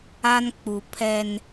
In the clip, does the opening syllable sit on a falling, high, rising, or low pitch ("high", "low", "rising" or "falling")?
high